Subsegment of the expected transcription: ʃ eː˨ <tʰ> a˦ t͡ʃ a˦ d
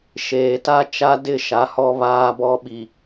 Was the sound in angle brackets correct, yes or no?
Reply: no